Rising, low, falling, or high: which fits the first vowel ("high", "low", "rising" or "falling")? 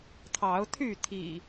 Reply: rising